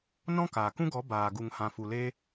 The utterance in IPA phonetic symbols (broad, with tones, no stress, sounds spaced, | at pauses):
n ɔ̃˦ k aː˨ k ũ˦ ɡ ɔ˨˦ b aː˨ ɡ u˨ ŋ h ã˨ f u˨ l eː˧